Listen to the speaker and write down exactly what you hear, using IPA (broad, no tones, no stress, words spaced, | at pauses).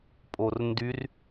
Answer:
pʼorndyr